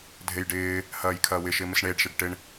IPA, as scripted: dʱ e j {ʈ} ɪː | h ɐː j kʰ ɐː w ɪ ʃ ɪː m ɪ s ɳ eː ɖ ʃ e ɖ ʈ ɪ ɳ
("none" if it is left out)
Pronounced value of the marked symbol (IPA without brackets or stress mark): ɖ